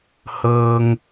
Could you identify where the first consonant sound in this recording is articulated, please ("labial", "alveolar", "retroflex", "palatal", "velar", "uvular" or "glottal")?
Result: glottal